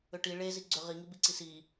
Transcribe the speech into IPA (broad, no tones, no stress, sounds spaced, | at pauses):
ʏ ʈ i ɭ e z i ɡ͡ǀ ʏ ʁ i ŋ i b i ǀ i s i